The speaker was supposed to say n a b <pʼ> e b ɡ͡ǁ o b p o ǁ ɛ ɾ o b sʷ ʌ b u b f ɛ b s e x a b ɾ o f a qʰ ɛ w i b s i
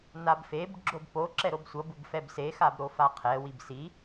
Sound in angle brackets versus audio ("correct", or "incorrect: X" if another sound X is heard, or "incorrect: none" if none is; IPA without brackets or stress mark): incorrect: f